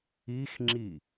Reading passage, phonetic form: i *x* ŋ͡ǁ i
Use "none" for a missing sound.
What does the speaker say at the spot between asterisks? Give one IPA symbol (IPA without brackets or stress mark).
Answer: x